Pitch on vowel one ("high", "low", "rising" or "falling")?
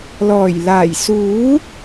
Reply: low